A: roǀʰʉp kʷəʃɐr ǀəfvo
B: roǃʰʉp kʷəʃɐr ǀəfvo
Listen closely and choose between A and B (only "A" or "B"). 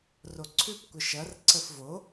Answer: A